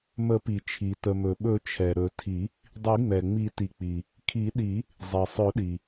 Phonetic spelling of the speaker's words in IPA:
m ə˨˩˦ p i˩ t͡ʃʰ i˩ t ə˩ m ɵ˩ ɓ ɵ˨˩˦ t͡ʃʰ ɛ˩ ɾ ɵ˨˩˦ tʰ i˨˩˦ | dˤ i˨˩˦ ŋ͡m ɛ˩ ŋ͡m i˨˩˦ t i˩ k͡p i˩ | kʰ i˨˩˦ ɗ i˨˩˦ | zˤ e˩ sˤ ɵ˨˩˦ ɗ i˩

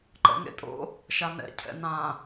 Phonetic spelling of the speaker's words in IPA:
ǃ ɛ̰ ŋ ḛ tʼ o̰ | ʃ a n ɛ̰ cʰ ɛ̰ n ã

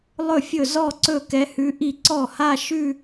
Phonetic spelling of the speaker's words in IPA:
lˠ ɵ˥˩ fʲ ɵ˥˩ z ɔ˥˧ ǀ ɵ˥˩ k ɛ˧˥ h ʉ˧˥ ʔ i˥˩ ǀ ɔ˥˩ h a˥˧ ʃ ʉ˥˧

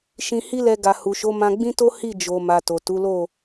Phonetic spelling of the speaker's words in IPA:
ʃ ĩ˧ h i˦ l ɛ˧ ɡ a˨ h u˨ ʃ o˨˦ m ã˧ ɡ͡b ĩ˦ t o˦ h i˦˨ d͡ʒ o˨ m a˨ t o˨ t u˨˦ l o˦˨

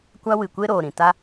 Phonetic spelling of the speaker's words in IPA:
kʷ a˦ w ɨ˨ kʷ e˦ ɾ oː˨ ɾ ĩ˨ t a˦

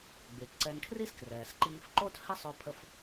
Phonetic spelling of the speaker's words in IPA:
ɡ͡b y˩ t ǀ ɛ˧ n kʰ r i˥ s k r ɛː˩ s ǃ iː˧ f ǃ o˥ t h ɛ˥ sˤ ø˧ pʰ ə˧ f

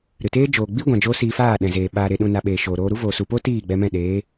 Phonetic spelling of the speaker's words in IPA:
ɾ ɨ˨ t eː˦ d͡ʒ oː˨ ɡ͡b i˦ ɡʷ ã˧ d͡ʒ o˦ s iː˧ f aː˦˨ ɗ ɛ̃˨ z eː˨ ɓ aː˨ ɾ e˨ ɗ ũ˨ n a˨ ɓ eː˨ ʃ oː˨ ɾ oː˧ ɾ u˦ v oː˨ s u˨ p o˦ t iː˦˨ ɡ͡b ɛ˧ m ɛ̃˦˨ ɗ eː˨˦

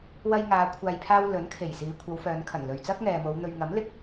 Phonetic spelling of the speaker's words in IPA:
w ɐ˧ j ŋ aː˨˧ kʷʰ aː˨ j pʰ aː˧ w l ɵ˨˥ n kʰ e˨˩ j s iː˨˧ kʷʰ ɐ˨˧ w f œː˨˧ n kʰ ɐ˨˩ n l ɵ˨ ɥ t͡s ɐ˥ k̚ ŋ ɛː˨ m o˨˧ w n̪ ɵ˨ ɥ ŋ ɐ˨˥ m l ɪ˧ k̚

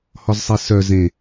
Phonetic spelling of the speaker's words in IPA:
h ɔ z sˤ e s œ z ẽ

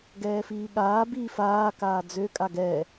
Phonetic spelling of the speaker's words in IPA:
ɡ ɛː f iː ɠ aː b iː f aː k aː d͡z ø kʼ a ɡ ɛː

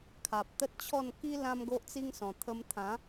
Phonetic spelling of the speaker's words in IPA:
kʰ a˨ p̚ t̪ ə˦ t̚ t͡ɕʰ ɔ˥˧ n k i˦ l ã˦ m ɡ o˦ ʔ t͡s i˦ ŋ s ɔ̃˨˩ t̪ʰ ə˧ m t̪ʰ ã˨˦

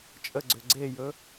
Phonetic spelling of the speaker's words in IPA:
t͡ʃʼ ə ɡ͡ǀ ʏ ɡ͡ǀ e j ɵ

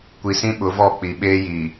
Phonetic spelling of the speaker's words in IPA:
kʷ i˨ s ĩ˦ ɓ ʊ˨˦ v ɔ˦˨ k͡p i˨ ɓ eː˦ j i˨

